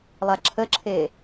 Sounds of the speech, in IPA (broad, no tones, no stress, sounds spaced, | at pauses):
lˠ a ǁʰ ə ǁʰ e